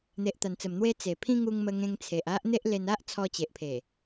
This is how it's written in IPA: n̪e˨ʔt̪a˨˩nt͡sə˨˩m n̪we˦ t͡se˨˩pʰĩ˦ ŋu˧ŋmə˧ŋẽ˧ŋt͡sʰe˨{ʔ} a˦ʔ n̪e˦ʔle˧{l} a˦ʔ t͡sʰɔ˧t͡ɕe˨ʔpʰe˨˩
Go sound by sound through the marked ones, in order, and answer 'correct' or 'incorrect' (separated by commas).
correct, incorrect